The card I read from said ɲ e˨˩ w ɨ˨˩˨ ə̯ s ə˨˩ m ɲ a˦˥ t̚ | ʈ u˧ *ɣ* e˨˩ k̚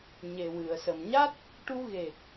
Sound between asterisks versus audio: correct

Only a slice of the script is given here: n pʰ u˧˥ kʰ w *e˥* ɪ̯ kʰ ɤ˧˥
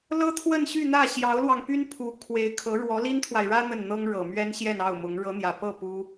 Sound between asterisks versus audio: incorrect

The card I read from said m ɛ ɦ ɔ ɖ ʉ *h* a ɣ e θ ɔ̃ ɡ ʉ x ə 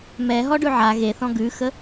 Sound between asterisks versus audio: incorrect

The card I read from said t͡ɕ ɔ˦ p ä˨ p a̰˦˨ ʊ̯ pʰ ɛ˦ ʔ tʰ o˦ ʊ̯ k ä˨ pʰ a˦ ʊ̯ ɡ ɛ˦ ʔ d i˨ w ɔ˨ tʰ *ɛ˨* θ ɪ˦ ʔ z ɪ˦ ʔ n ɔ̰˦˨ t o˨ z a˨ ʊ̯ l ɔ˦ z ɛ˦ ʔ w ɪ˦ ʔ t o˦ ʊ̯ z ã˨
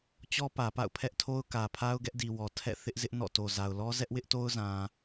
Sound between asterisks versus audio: incorrect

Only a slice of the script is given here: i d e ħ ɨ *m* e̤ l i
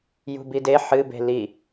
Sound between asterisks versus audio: incorrect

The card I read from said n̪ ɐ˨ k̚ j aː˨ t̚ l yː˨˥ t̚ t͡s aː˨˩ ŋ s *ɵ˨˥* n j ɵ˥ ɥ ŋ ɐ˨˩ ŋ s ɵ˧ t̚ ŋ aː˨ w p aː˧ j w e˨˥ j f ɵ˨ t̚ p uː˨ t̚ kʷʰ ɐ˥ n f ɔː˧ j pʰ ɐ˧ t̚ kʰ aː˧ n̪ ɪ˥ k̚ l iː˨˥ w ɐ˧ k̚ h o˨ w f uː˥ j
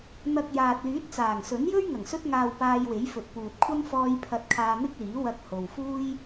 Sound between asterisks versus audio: correct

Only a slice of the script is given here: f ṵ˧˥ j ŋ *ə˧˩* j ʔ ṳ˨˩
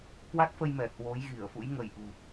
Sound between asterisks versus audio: correct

